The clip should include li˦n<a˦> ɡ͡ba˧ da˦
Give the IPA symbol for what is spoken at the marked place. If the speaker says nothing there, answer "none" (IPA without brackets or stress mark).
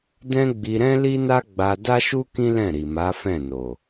a˦